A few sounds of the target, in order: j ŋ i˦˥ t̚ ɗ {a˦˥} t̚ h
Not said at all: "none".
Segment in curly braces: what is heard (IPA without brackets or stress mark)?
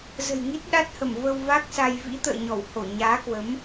a˦˥